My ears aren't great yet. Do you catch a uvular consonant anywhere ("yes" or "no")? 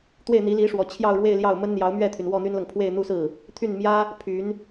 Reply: no